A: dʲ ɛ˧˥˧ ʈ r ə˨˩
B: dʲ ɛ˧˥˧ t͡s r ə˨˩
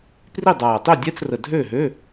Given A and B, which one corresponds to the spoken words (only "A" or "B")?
B